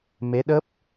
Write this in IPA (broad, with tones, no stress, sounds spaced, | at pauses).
m e˨˦ ɗ ə˦˥ p̚